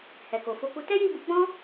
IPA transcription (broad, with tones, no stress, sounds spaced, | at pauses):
h ɛ˨ k o˨ f o˧ k u˧ t ɛ˦ j i˦˨ b u˧ ɡ͡b ɔ̃˦